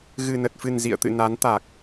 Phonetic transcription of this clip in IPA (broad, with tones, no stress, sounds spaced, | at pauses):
ɣ ɨ˨˩ n ə˨˩ t̚ f ɨ˨˩ n z ḭ˧˨ ə̯ t̪ ɨ̰˧˨ n a˨˦ n t̪ a˨˩ k̚